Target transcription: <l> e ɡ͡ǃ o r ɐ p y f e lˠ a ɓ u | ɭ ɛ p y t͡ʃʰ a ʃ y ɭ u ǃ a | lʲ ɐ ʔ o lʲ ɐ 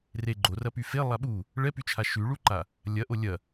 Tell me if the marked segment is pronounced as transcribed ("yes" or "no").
no